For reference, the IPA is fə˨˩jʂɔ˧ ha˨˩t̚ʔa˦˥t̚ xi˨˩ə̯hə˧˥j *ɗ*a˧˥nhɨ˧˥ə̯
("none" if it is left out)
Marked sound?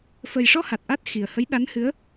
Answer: ɗ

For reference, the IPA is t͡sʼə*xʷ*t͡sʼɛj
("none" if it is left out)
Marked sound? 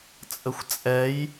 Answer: xʷ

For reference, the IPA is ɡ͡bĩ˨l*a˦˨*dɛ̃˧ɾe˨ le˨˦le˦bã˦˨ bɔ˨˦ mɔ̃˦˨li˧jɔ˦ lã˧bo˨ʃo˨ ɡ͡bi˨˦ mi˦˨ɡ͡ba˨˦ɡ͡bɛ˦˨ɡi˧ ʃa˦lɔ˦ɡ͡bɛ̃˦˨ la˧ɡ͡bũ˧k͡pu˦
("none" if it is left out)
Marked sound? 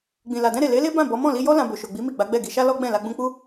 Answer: a˨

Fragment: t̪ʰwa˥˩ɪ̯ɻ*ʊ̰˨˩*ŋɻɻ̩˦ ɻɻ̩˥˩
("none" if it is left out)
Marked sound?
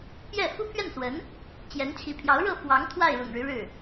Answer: ʊ̰˨˩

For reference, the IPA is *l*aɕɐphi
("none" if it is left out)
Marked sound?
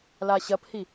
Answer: l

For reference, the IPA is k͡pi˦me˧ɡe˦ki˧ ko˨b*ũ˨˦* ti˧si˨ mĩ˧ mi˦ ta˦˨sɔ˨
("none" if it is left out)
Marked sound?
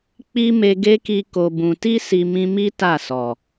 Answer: ũ˨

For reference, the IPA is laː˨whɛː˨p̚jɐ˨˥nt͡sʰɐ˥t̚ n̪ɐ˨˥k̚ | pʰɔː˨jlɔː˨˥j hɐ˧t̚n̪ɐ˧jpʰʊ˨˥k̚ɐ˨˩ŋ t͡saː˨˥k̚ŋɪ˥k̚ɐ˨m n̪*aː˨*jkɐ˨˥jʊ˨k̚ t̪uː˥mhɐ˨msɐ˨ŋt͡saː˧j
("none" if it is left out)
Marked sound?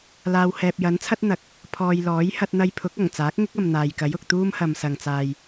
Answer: aː˨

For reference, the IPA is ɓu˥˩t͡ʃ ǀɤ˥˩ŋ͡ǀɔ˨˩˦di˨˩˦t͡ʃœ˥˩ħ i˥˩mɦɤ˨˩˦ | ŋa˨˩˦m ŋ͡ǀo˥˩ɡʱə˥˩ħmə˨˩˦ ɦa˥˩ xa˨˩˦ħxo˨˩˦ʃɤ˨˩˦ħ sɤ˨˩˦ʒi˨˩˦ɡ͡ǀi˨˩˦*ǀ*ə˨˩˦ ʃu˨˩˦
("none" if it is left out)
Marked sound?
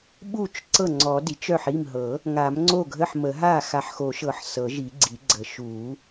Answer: ɡ͡ǀ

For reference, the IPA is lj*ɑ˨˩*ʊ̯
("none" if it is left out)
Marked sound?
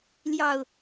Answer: ɑ˥˨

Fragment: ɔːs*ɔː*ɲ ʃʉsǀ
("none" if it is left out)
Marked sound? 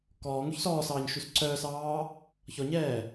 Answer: ɑː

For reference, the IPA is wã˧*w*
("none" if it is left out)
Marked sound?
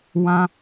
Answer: none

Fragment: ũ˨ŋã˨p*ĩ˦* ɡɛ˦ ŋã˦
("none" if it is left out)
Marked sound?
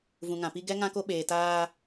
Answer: i˦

